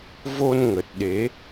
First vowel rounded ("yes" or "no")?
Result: yes